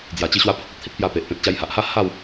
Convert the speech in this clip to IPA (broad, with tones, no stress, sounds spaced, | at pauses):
d͡z j a˨˩ t͡ɕ i˧ ɕ w a˧ pʰ ə˨ k̚ a˦ t̚ t̪ʰ i˦ t̚ p j a˧ p e˨ ʔ p ẽ˨ t̚ t͡ɕ a˧ j h a˨ ʔ h a˥˧ h a˥˧ w